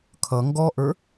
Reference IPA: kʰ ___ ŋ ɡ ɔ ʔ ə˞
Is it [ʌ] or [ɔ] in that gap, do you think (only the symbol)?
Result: ʌ